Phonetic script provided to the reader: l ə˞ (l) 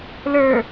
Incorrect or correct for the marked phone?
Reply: incorrect: none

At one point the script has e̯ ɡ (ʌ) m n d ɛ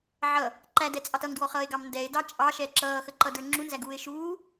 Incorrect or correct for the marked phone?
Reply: incorrect: ɑ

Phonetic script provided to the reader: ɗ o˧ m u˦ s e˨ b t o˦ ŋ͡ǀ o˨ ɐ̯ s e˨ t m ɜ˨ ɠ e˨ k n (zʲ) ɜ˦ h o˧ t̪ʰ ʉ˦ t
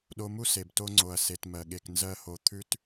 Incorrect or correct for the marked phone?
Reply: incorrect: z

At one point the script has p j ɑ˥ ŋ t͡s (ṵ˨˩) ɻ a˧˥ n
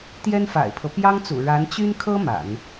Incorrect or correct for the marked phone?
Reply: correct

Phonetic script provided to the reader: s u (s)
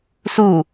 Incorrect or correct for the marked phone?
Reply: incorrect: none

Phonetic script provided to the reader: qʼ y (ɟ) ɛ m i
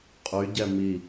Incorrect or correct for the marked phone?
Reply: correct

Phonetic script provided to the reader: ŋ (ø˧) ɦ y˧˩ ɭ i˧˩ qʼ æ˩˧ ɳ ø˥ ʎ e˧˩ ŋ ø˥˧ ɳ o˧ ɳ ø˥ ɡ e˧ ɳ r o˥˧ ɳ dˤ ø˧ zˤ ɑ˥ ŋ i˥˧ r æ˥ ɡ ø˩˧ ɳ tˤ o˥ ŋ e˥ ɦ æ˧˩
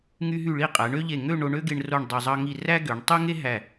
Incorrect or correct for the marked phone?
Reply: incorrect: y˧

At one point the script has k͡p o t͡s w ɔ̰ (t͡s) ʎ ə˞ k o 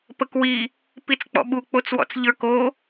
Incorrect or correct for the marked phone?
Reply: correct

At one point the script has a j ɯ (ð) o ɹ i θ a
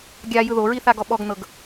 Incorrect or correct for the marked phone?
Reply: correct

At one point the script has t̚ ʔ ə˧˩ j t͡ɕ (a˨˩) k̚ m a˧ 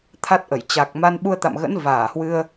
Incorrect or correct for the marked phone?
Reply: correct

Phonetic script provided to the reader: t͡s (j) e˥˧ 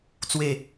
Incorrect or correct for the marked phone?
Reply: incorrect: w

